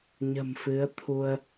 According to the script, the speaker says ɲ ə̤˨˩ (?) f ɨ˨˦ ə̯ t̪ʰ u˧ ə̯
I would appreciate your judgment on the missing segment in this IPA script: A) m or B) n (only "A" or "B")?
A